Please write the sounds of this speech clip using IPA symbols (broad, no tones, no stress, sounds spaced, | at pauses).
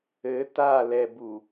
ɘ t a l ɛ b u